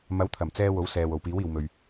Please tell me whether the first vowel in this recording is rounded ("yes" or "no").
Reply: no